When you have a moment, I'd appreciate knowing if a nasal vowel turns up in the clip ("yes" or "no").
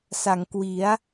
no